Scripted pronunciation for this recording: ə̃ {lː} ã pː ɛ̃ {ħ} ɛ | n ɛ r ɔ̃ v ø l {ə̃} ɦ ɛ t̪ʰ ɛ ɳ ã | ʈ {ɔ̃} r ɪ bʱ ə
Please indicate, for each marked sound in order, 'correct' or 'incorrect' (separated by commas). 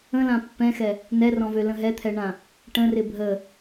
incorrect, incorrect, correct, incorrect